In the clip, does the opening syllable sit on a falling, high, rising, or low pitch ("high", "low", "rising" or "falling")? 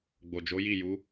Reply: low